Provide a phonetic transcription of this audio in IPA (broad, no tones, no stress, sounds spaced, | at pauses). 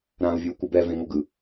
ɾ ãː u̯ vʲ uː kʷ ɯ b ɛ v ẽ ŋ o ɡ ɯ